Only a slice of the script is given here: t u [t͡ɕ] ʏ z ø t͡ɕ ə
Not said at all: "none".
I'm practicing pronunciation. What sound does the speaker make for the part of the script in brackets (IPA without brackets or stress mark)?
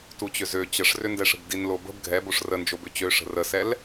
t͡ɕ